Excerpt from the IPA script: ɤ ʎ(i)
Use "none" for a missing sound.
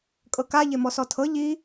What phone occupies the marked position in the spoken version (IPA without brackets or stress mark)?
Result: i